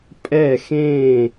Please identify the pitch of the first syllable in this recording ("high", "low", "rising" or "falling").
falling